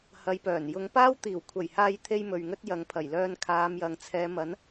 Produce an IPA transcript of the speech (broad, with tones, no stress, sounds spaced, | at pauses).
h ɐ˨˧ j p œː˨˩ n j ʊ˨˧ ŋ p aː˥ w t̪ iː˨˩ w kʷʰ ɐ˨˩ j h aː˧ j t̪ʰ e˥ j m ɵ˨ ɥ ŋ ɵ˥ t̚ j ɐ˨˧ ŋ pʰ ɐ˨˩ j l œː˧ n kʰ aː˨˧ m j ɐ˨ ŋ t͡sʰ ɛː˨˧ m ɐ˨˥ n